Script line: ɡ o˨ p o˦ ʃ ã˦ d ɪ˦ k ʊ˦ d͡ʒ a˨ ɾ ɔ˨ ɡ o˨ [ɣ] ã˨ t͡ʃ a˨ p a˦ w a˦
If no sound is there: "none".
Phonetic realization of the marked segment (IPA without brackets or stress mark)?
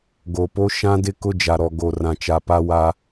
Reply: r